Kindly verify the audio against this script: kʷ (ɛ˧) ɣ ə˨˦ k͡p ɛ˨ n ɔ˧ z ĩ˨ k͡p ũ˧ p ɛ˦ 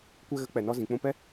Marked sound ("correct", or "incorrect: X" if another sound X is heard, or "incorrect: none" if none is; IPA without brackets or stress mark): correct